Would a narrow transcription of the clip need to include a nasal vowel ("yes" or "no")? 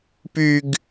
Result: no